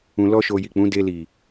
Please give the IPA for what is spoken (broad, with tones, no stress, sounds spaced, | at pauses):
ũ˧ l ɔ˦ ʃ o˧ j i˨ k͡p ũ˨˦ d e˧ l i˨